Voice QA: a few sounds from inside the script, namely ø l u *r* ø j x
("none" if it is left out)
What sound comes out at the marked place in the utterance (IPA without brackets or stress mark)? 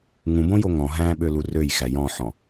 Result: r